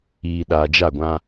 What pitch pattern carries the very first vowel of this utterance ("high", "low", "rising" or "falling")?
low